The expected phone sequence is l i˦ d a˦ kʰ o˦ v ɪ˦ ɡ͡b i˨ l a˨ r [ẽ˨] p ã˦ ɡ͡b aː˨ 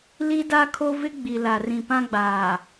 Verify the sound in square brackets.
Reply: incorrect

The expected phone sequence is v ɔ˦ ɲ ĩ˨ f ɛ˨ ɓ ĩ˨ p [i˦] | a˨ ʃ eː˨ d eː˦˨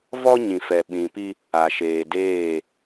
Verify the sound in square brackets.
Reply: correct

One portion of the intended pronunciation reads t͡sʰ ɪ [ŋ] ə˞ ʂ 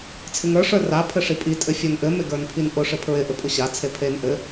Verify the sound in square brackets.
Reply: correct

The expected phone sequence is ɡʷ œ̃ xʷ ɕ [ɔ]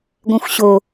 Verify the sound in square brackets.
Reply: incorrect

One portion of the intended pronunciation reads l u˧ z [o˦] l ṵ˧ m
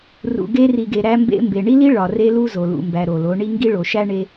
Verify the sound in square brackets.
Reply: incorrect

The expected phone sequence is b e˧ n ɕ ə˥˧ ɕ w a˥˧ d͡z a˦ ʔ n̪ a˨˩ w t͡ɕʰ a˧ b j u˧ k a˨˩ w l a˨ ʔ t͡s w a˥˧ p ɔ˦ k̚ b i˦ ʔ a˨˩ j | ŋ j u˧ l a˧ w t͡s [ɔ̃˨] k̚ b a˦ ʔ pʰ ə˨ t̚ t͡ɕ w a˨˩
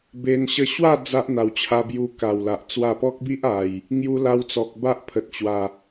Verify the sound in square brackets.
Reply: incorrect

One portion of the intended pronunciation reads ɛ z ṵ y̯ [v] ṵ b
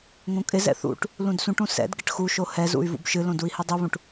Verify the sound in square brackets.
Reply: correct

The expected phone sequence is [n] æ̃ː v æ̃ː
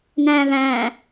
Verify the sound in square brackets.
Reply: correct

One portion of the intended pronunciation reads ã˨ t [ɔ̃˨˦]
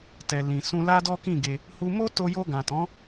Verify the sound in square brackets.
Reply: correct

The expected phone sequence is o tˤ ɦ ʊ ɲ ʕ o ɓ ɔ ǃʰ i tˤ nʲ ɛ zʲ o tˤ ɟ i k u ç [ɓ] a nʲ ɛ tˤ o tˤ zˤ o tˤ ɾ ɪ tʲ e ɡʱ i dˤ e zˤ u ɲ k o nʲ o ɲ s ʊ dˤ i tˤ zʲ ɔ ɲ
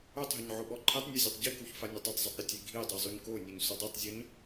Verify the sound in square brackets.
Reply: incorrect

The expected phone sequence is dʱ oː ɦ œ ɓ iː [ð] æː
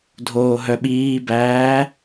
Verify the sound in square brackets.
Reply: incorrect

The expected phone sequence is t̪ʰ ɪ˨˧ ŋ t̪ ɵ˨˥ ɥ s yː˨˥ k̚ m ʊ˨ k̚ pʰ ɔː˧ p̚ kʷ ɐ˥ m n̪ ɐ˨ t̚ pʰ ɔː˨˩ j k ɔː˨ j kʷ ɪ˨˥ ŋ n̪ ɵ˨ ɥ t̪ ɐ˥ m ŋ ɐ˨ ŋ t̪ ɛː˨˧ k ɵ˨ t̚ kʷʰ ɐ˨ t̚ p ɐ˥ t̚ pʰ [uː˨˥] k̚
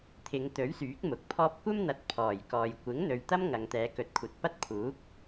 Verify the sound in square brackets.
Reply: correct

